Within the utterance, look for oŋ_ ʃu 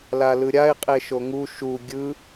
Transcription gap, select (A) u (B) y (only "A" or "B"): A